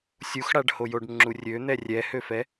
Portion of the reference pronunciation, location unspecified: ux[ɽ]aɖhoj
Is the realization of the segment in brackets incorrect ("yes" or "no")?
no